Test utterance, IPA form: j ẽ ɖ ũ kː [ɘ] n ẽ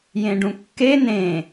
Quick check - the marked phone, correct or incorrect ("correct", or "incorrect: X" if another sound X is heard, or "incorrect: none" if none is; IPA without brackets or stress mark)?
incorrect: e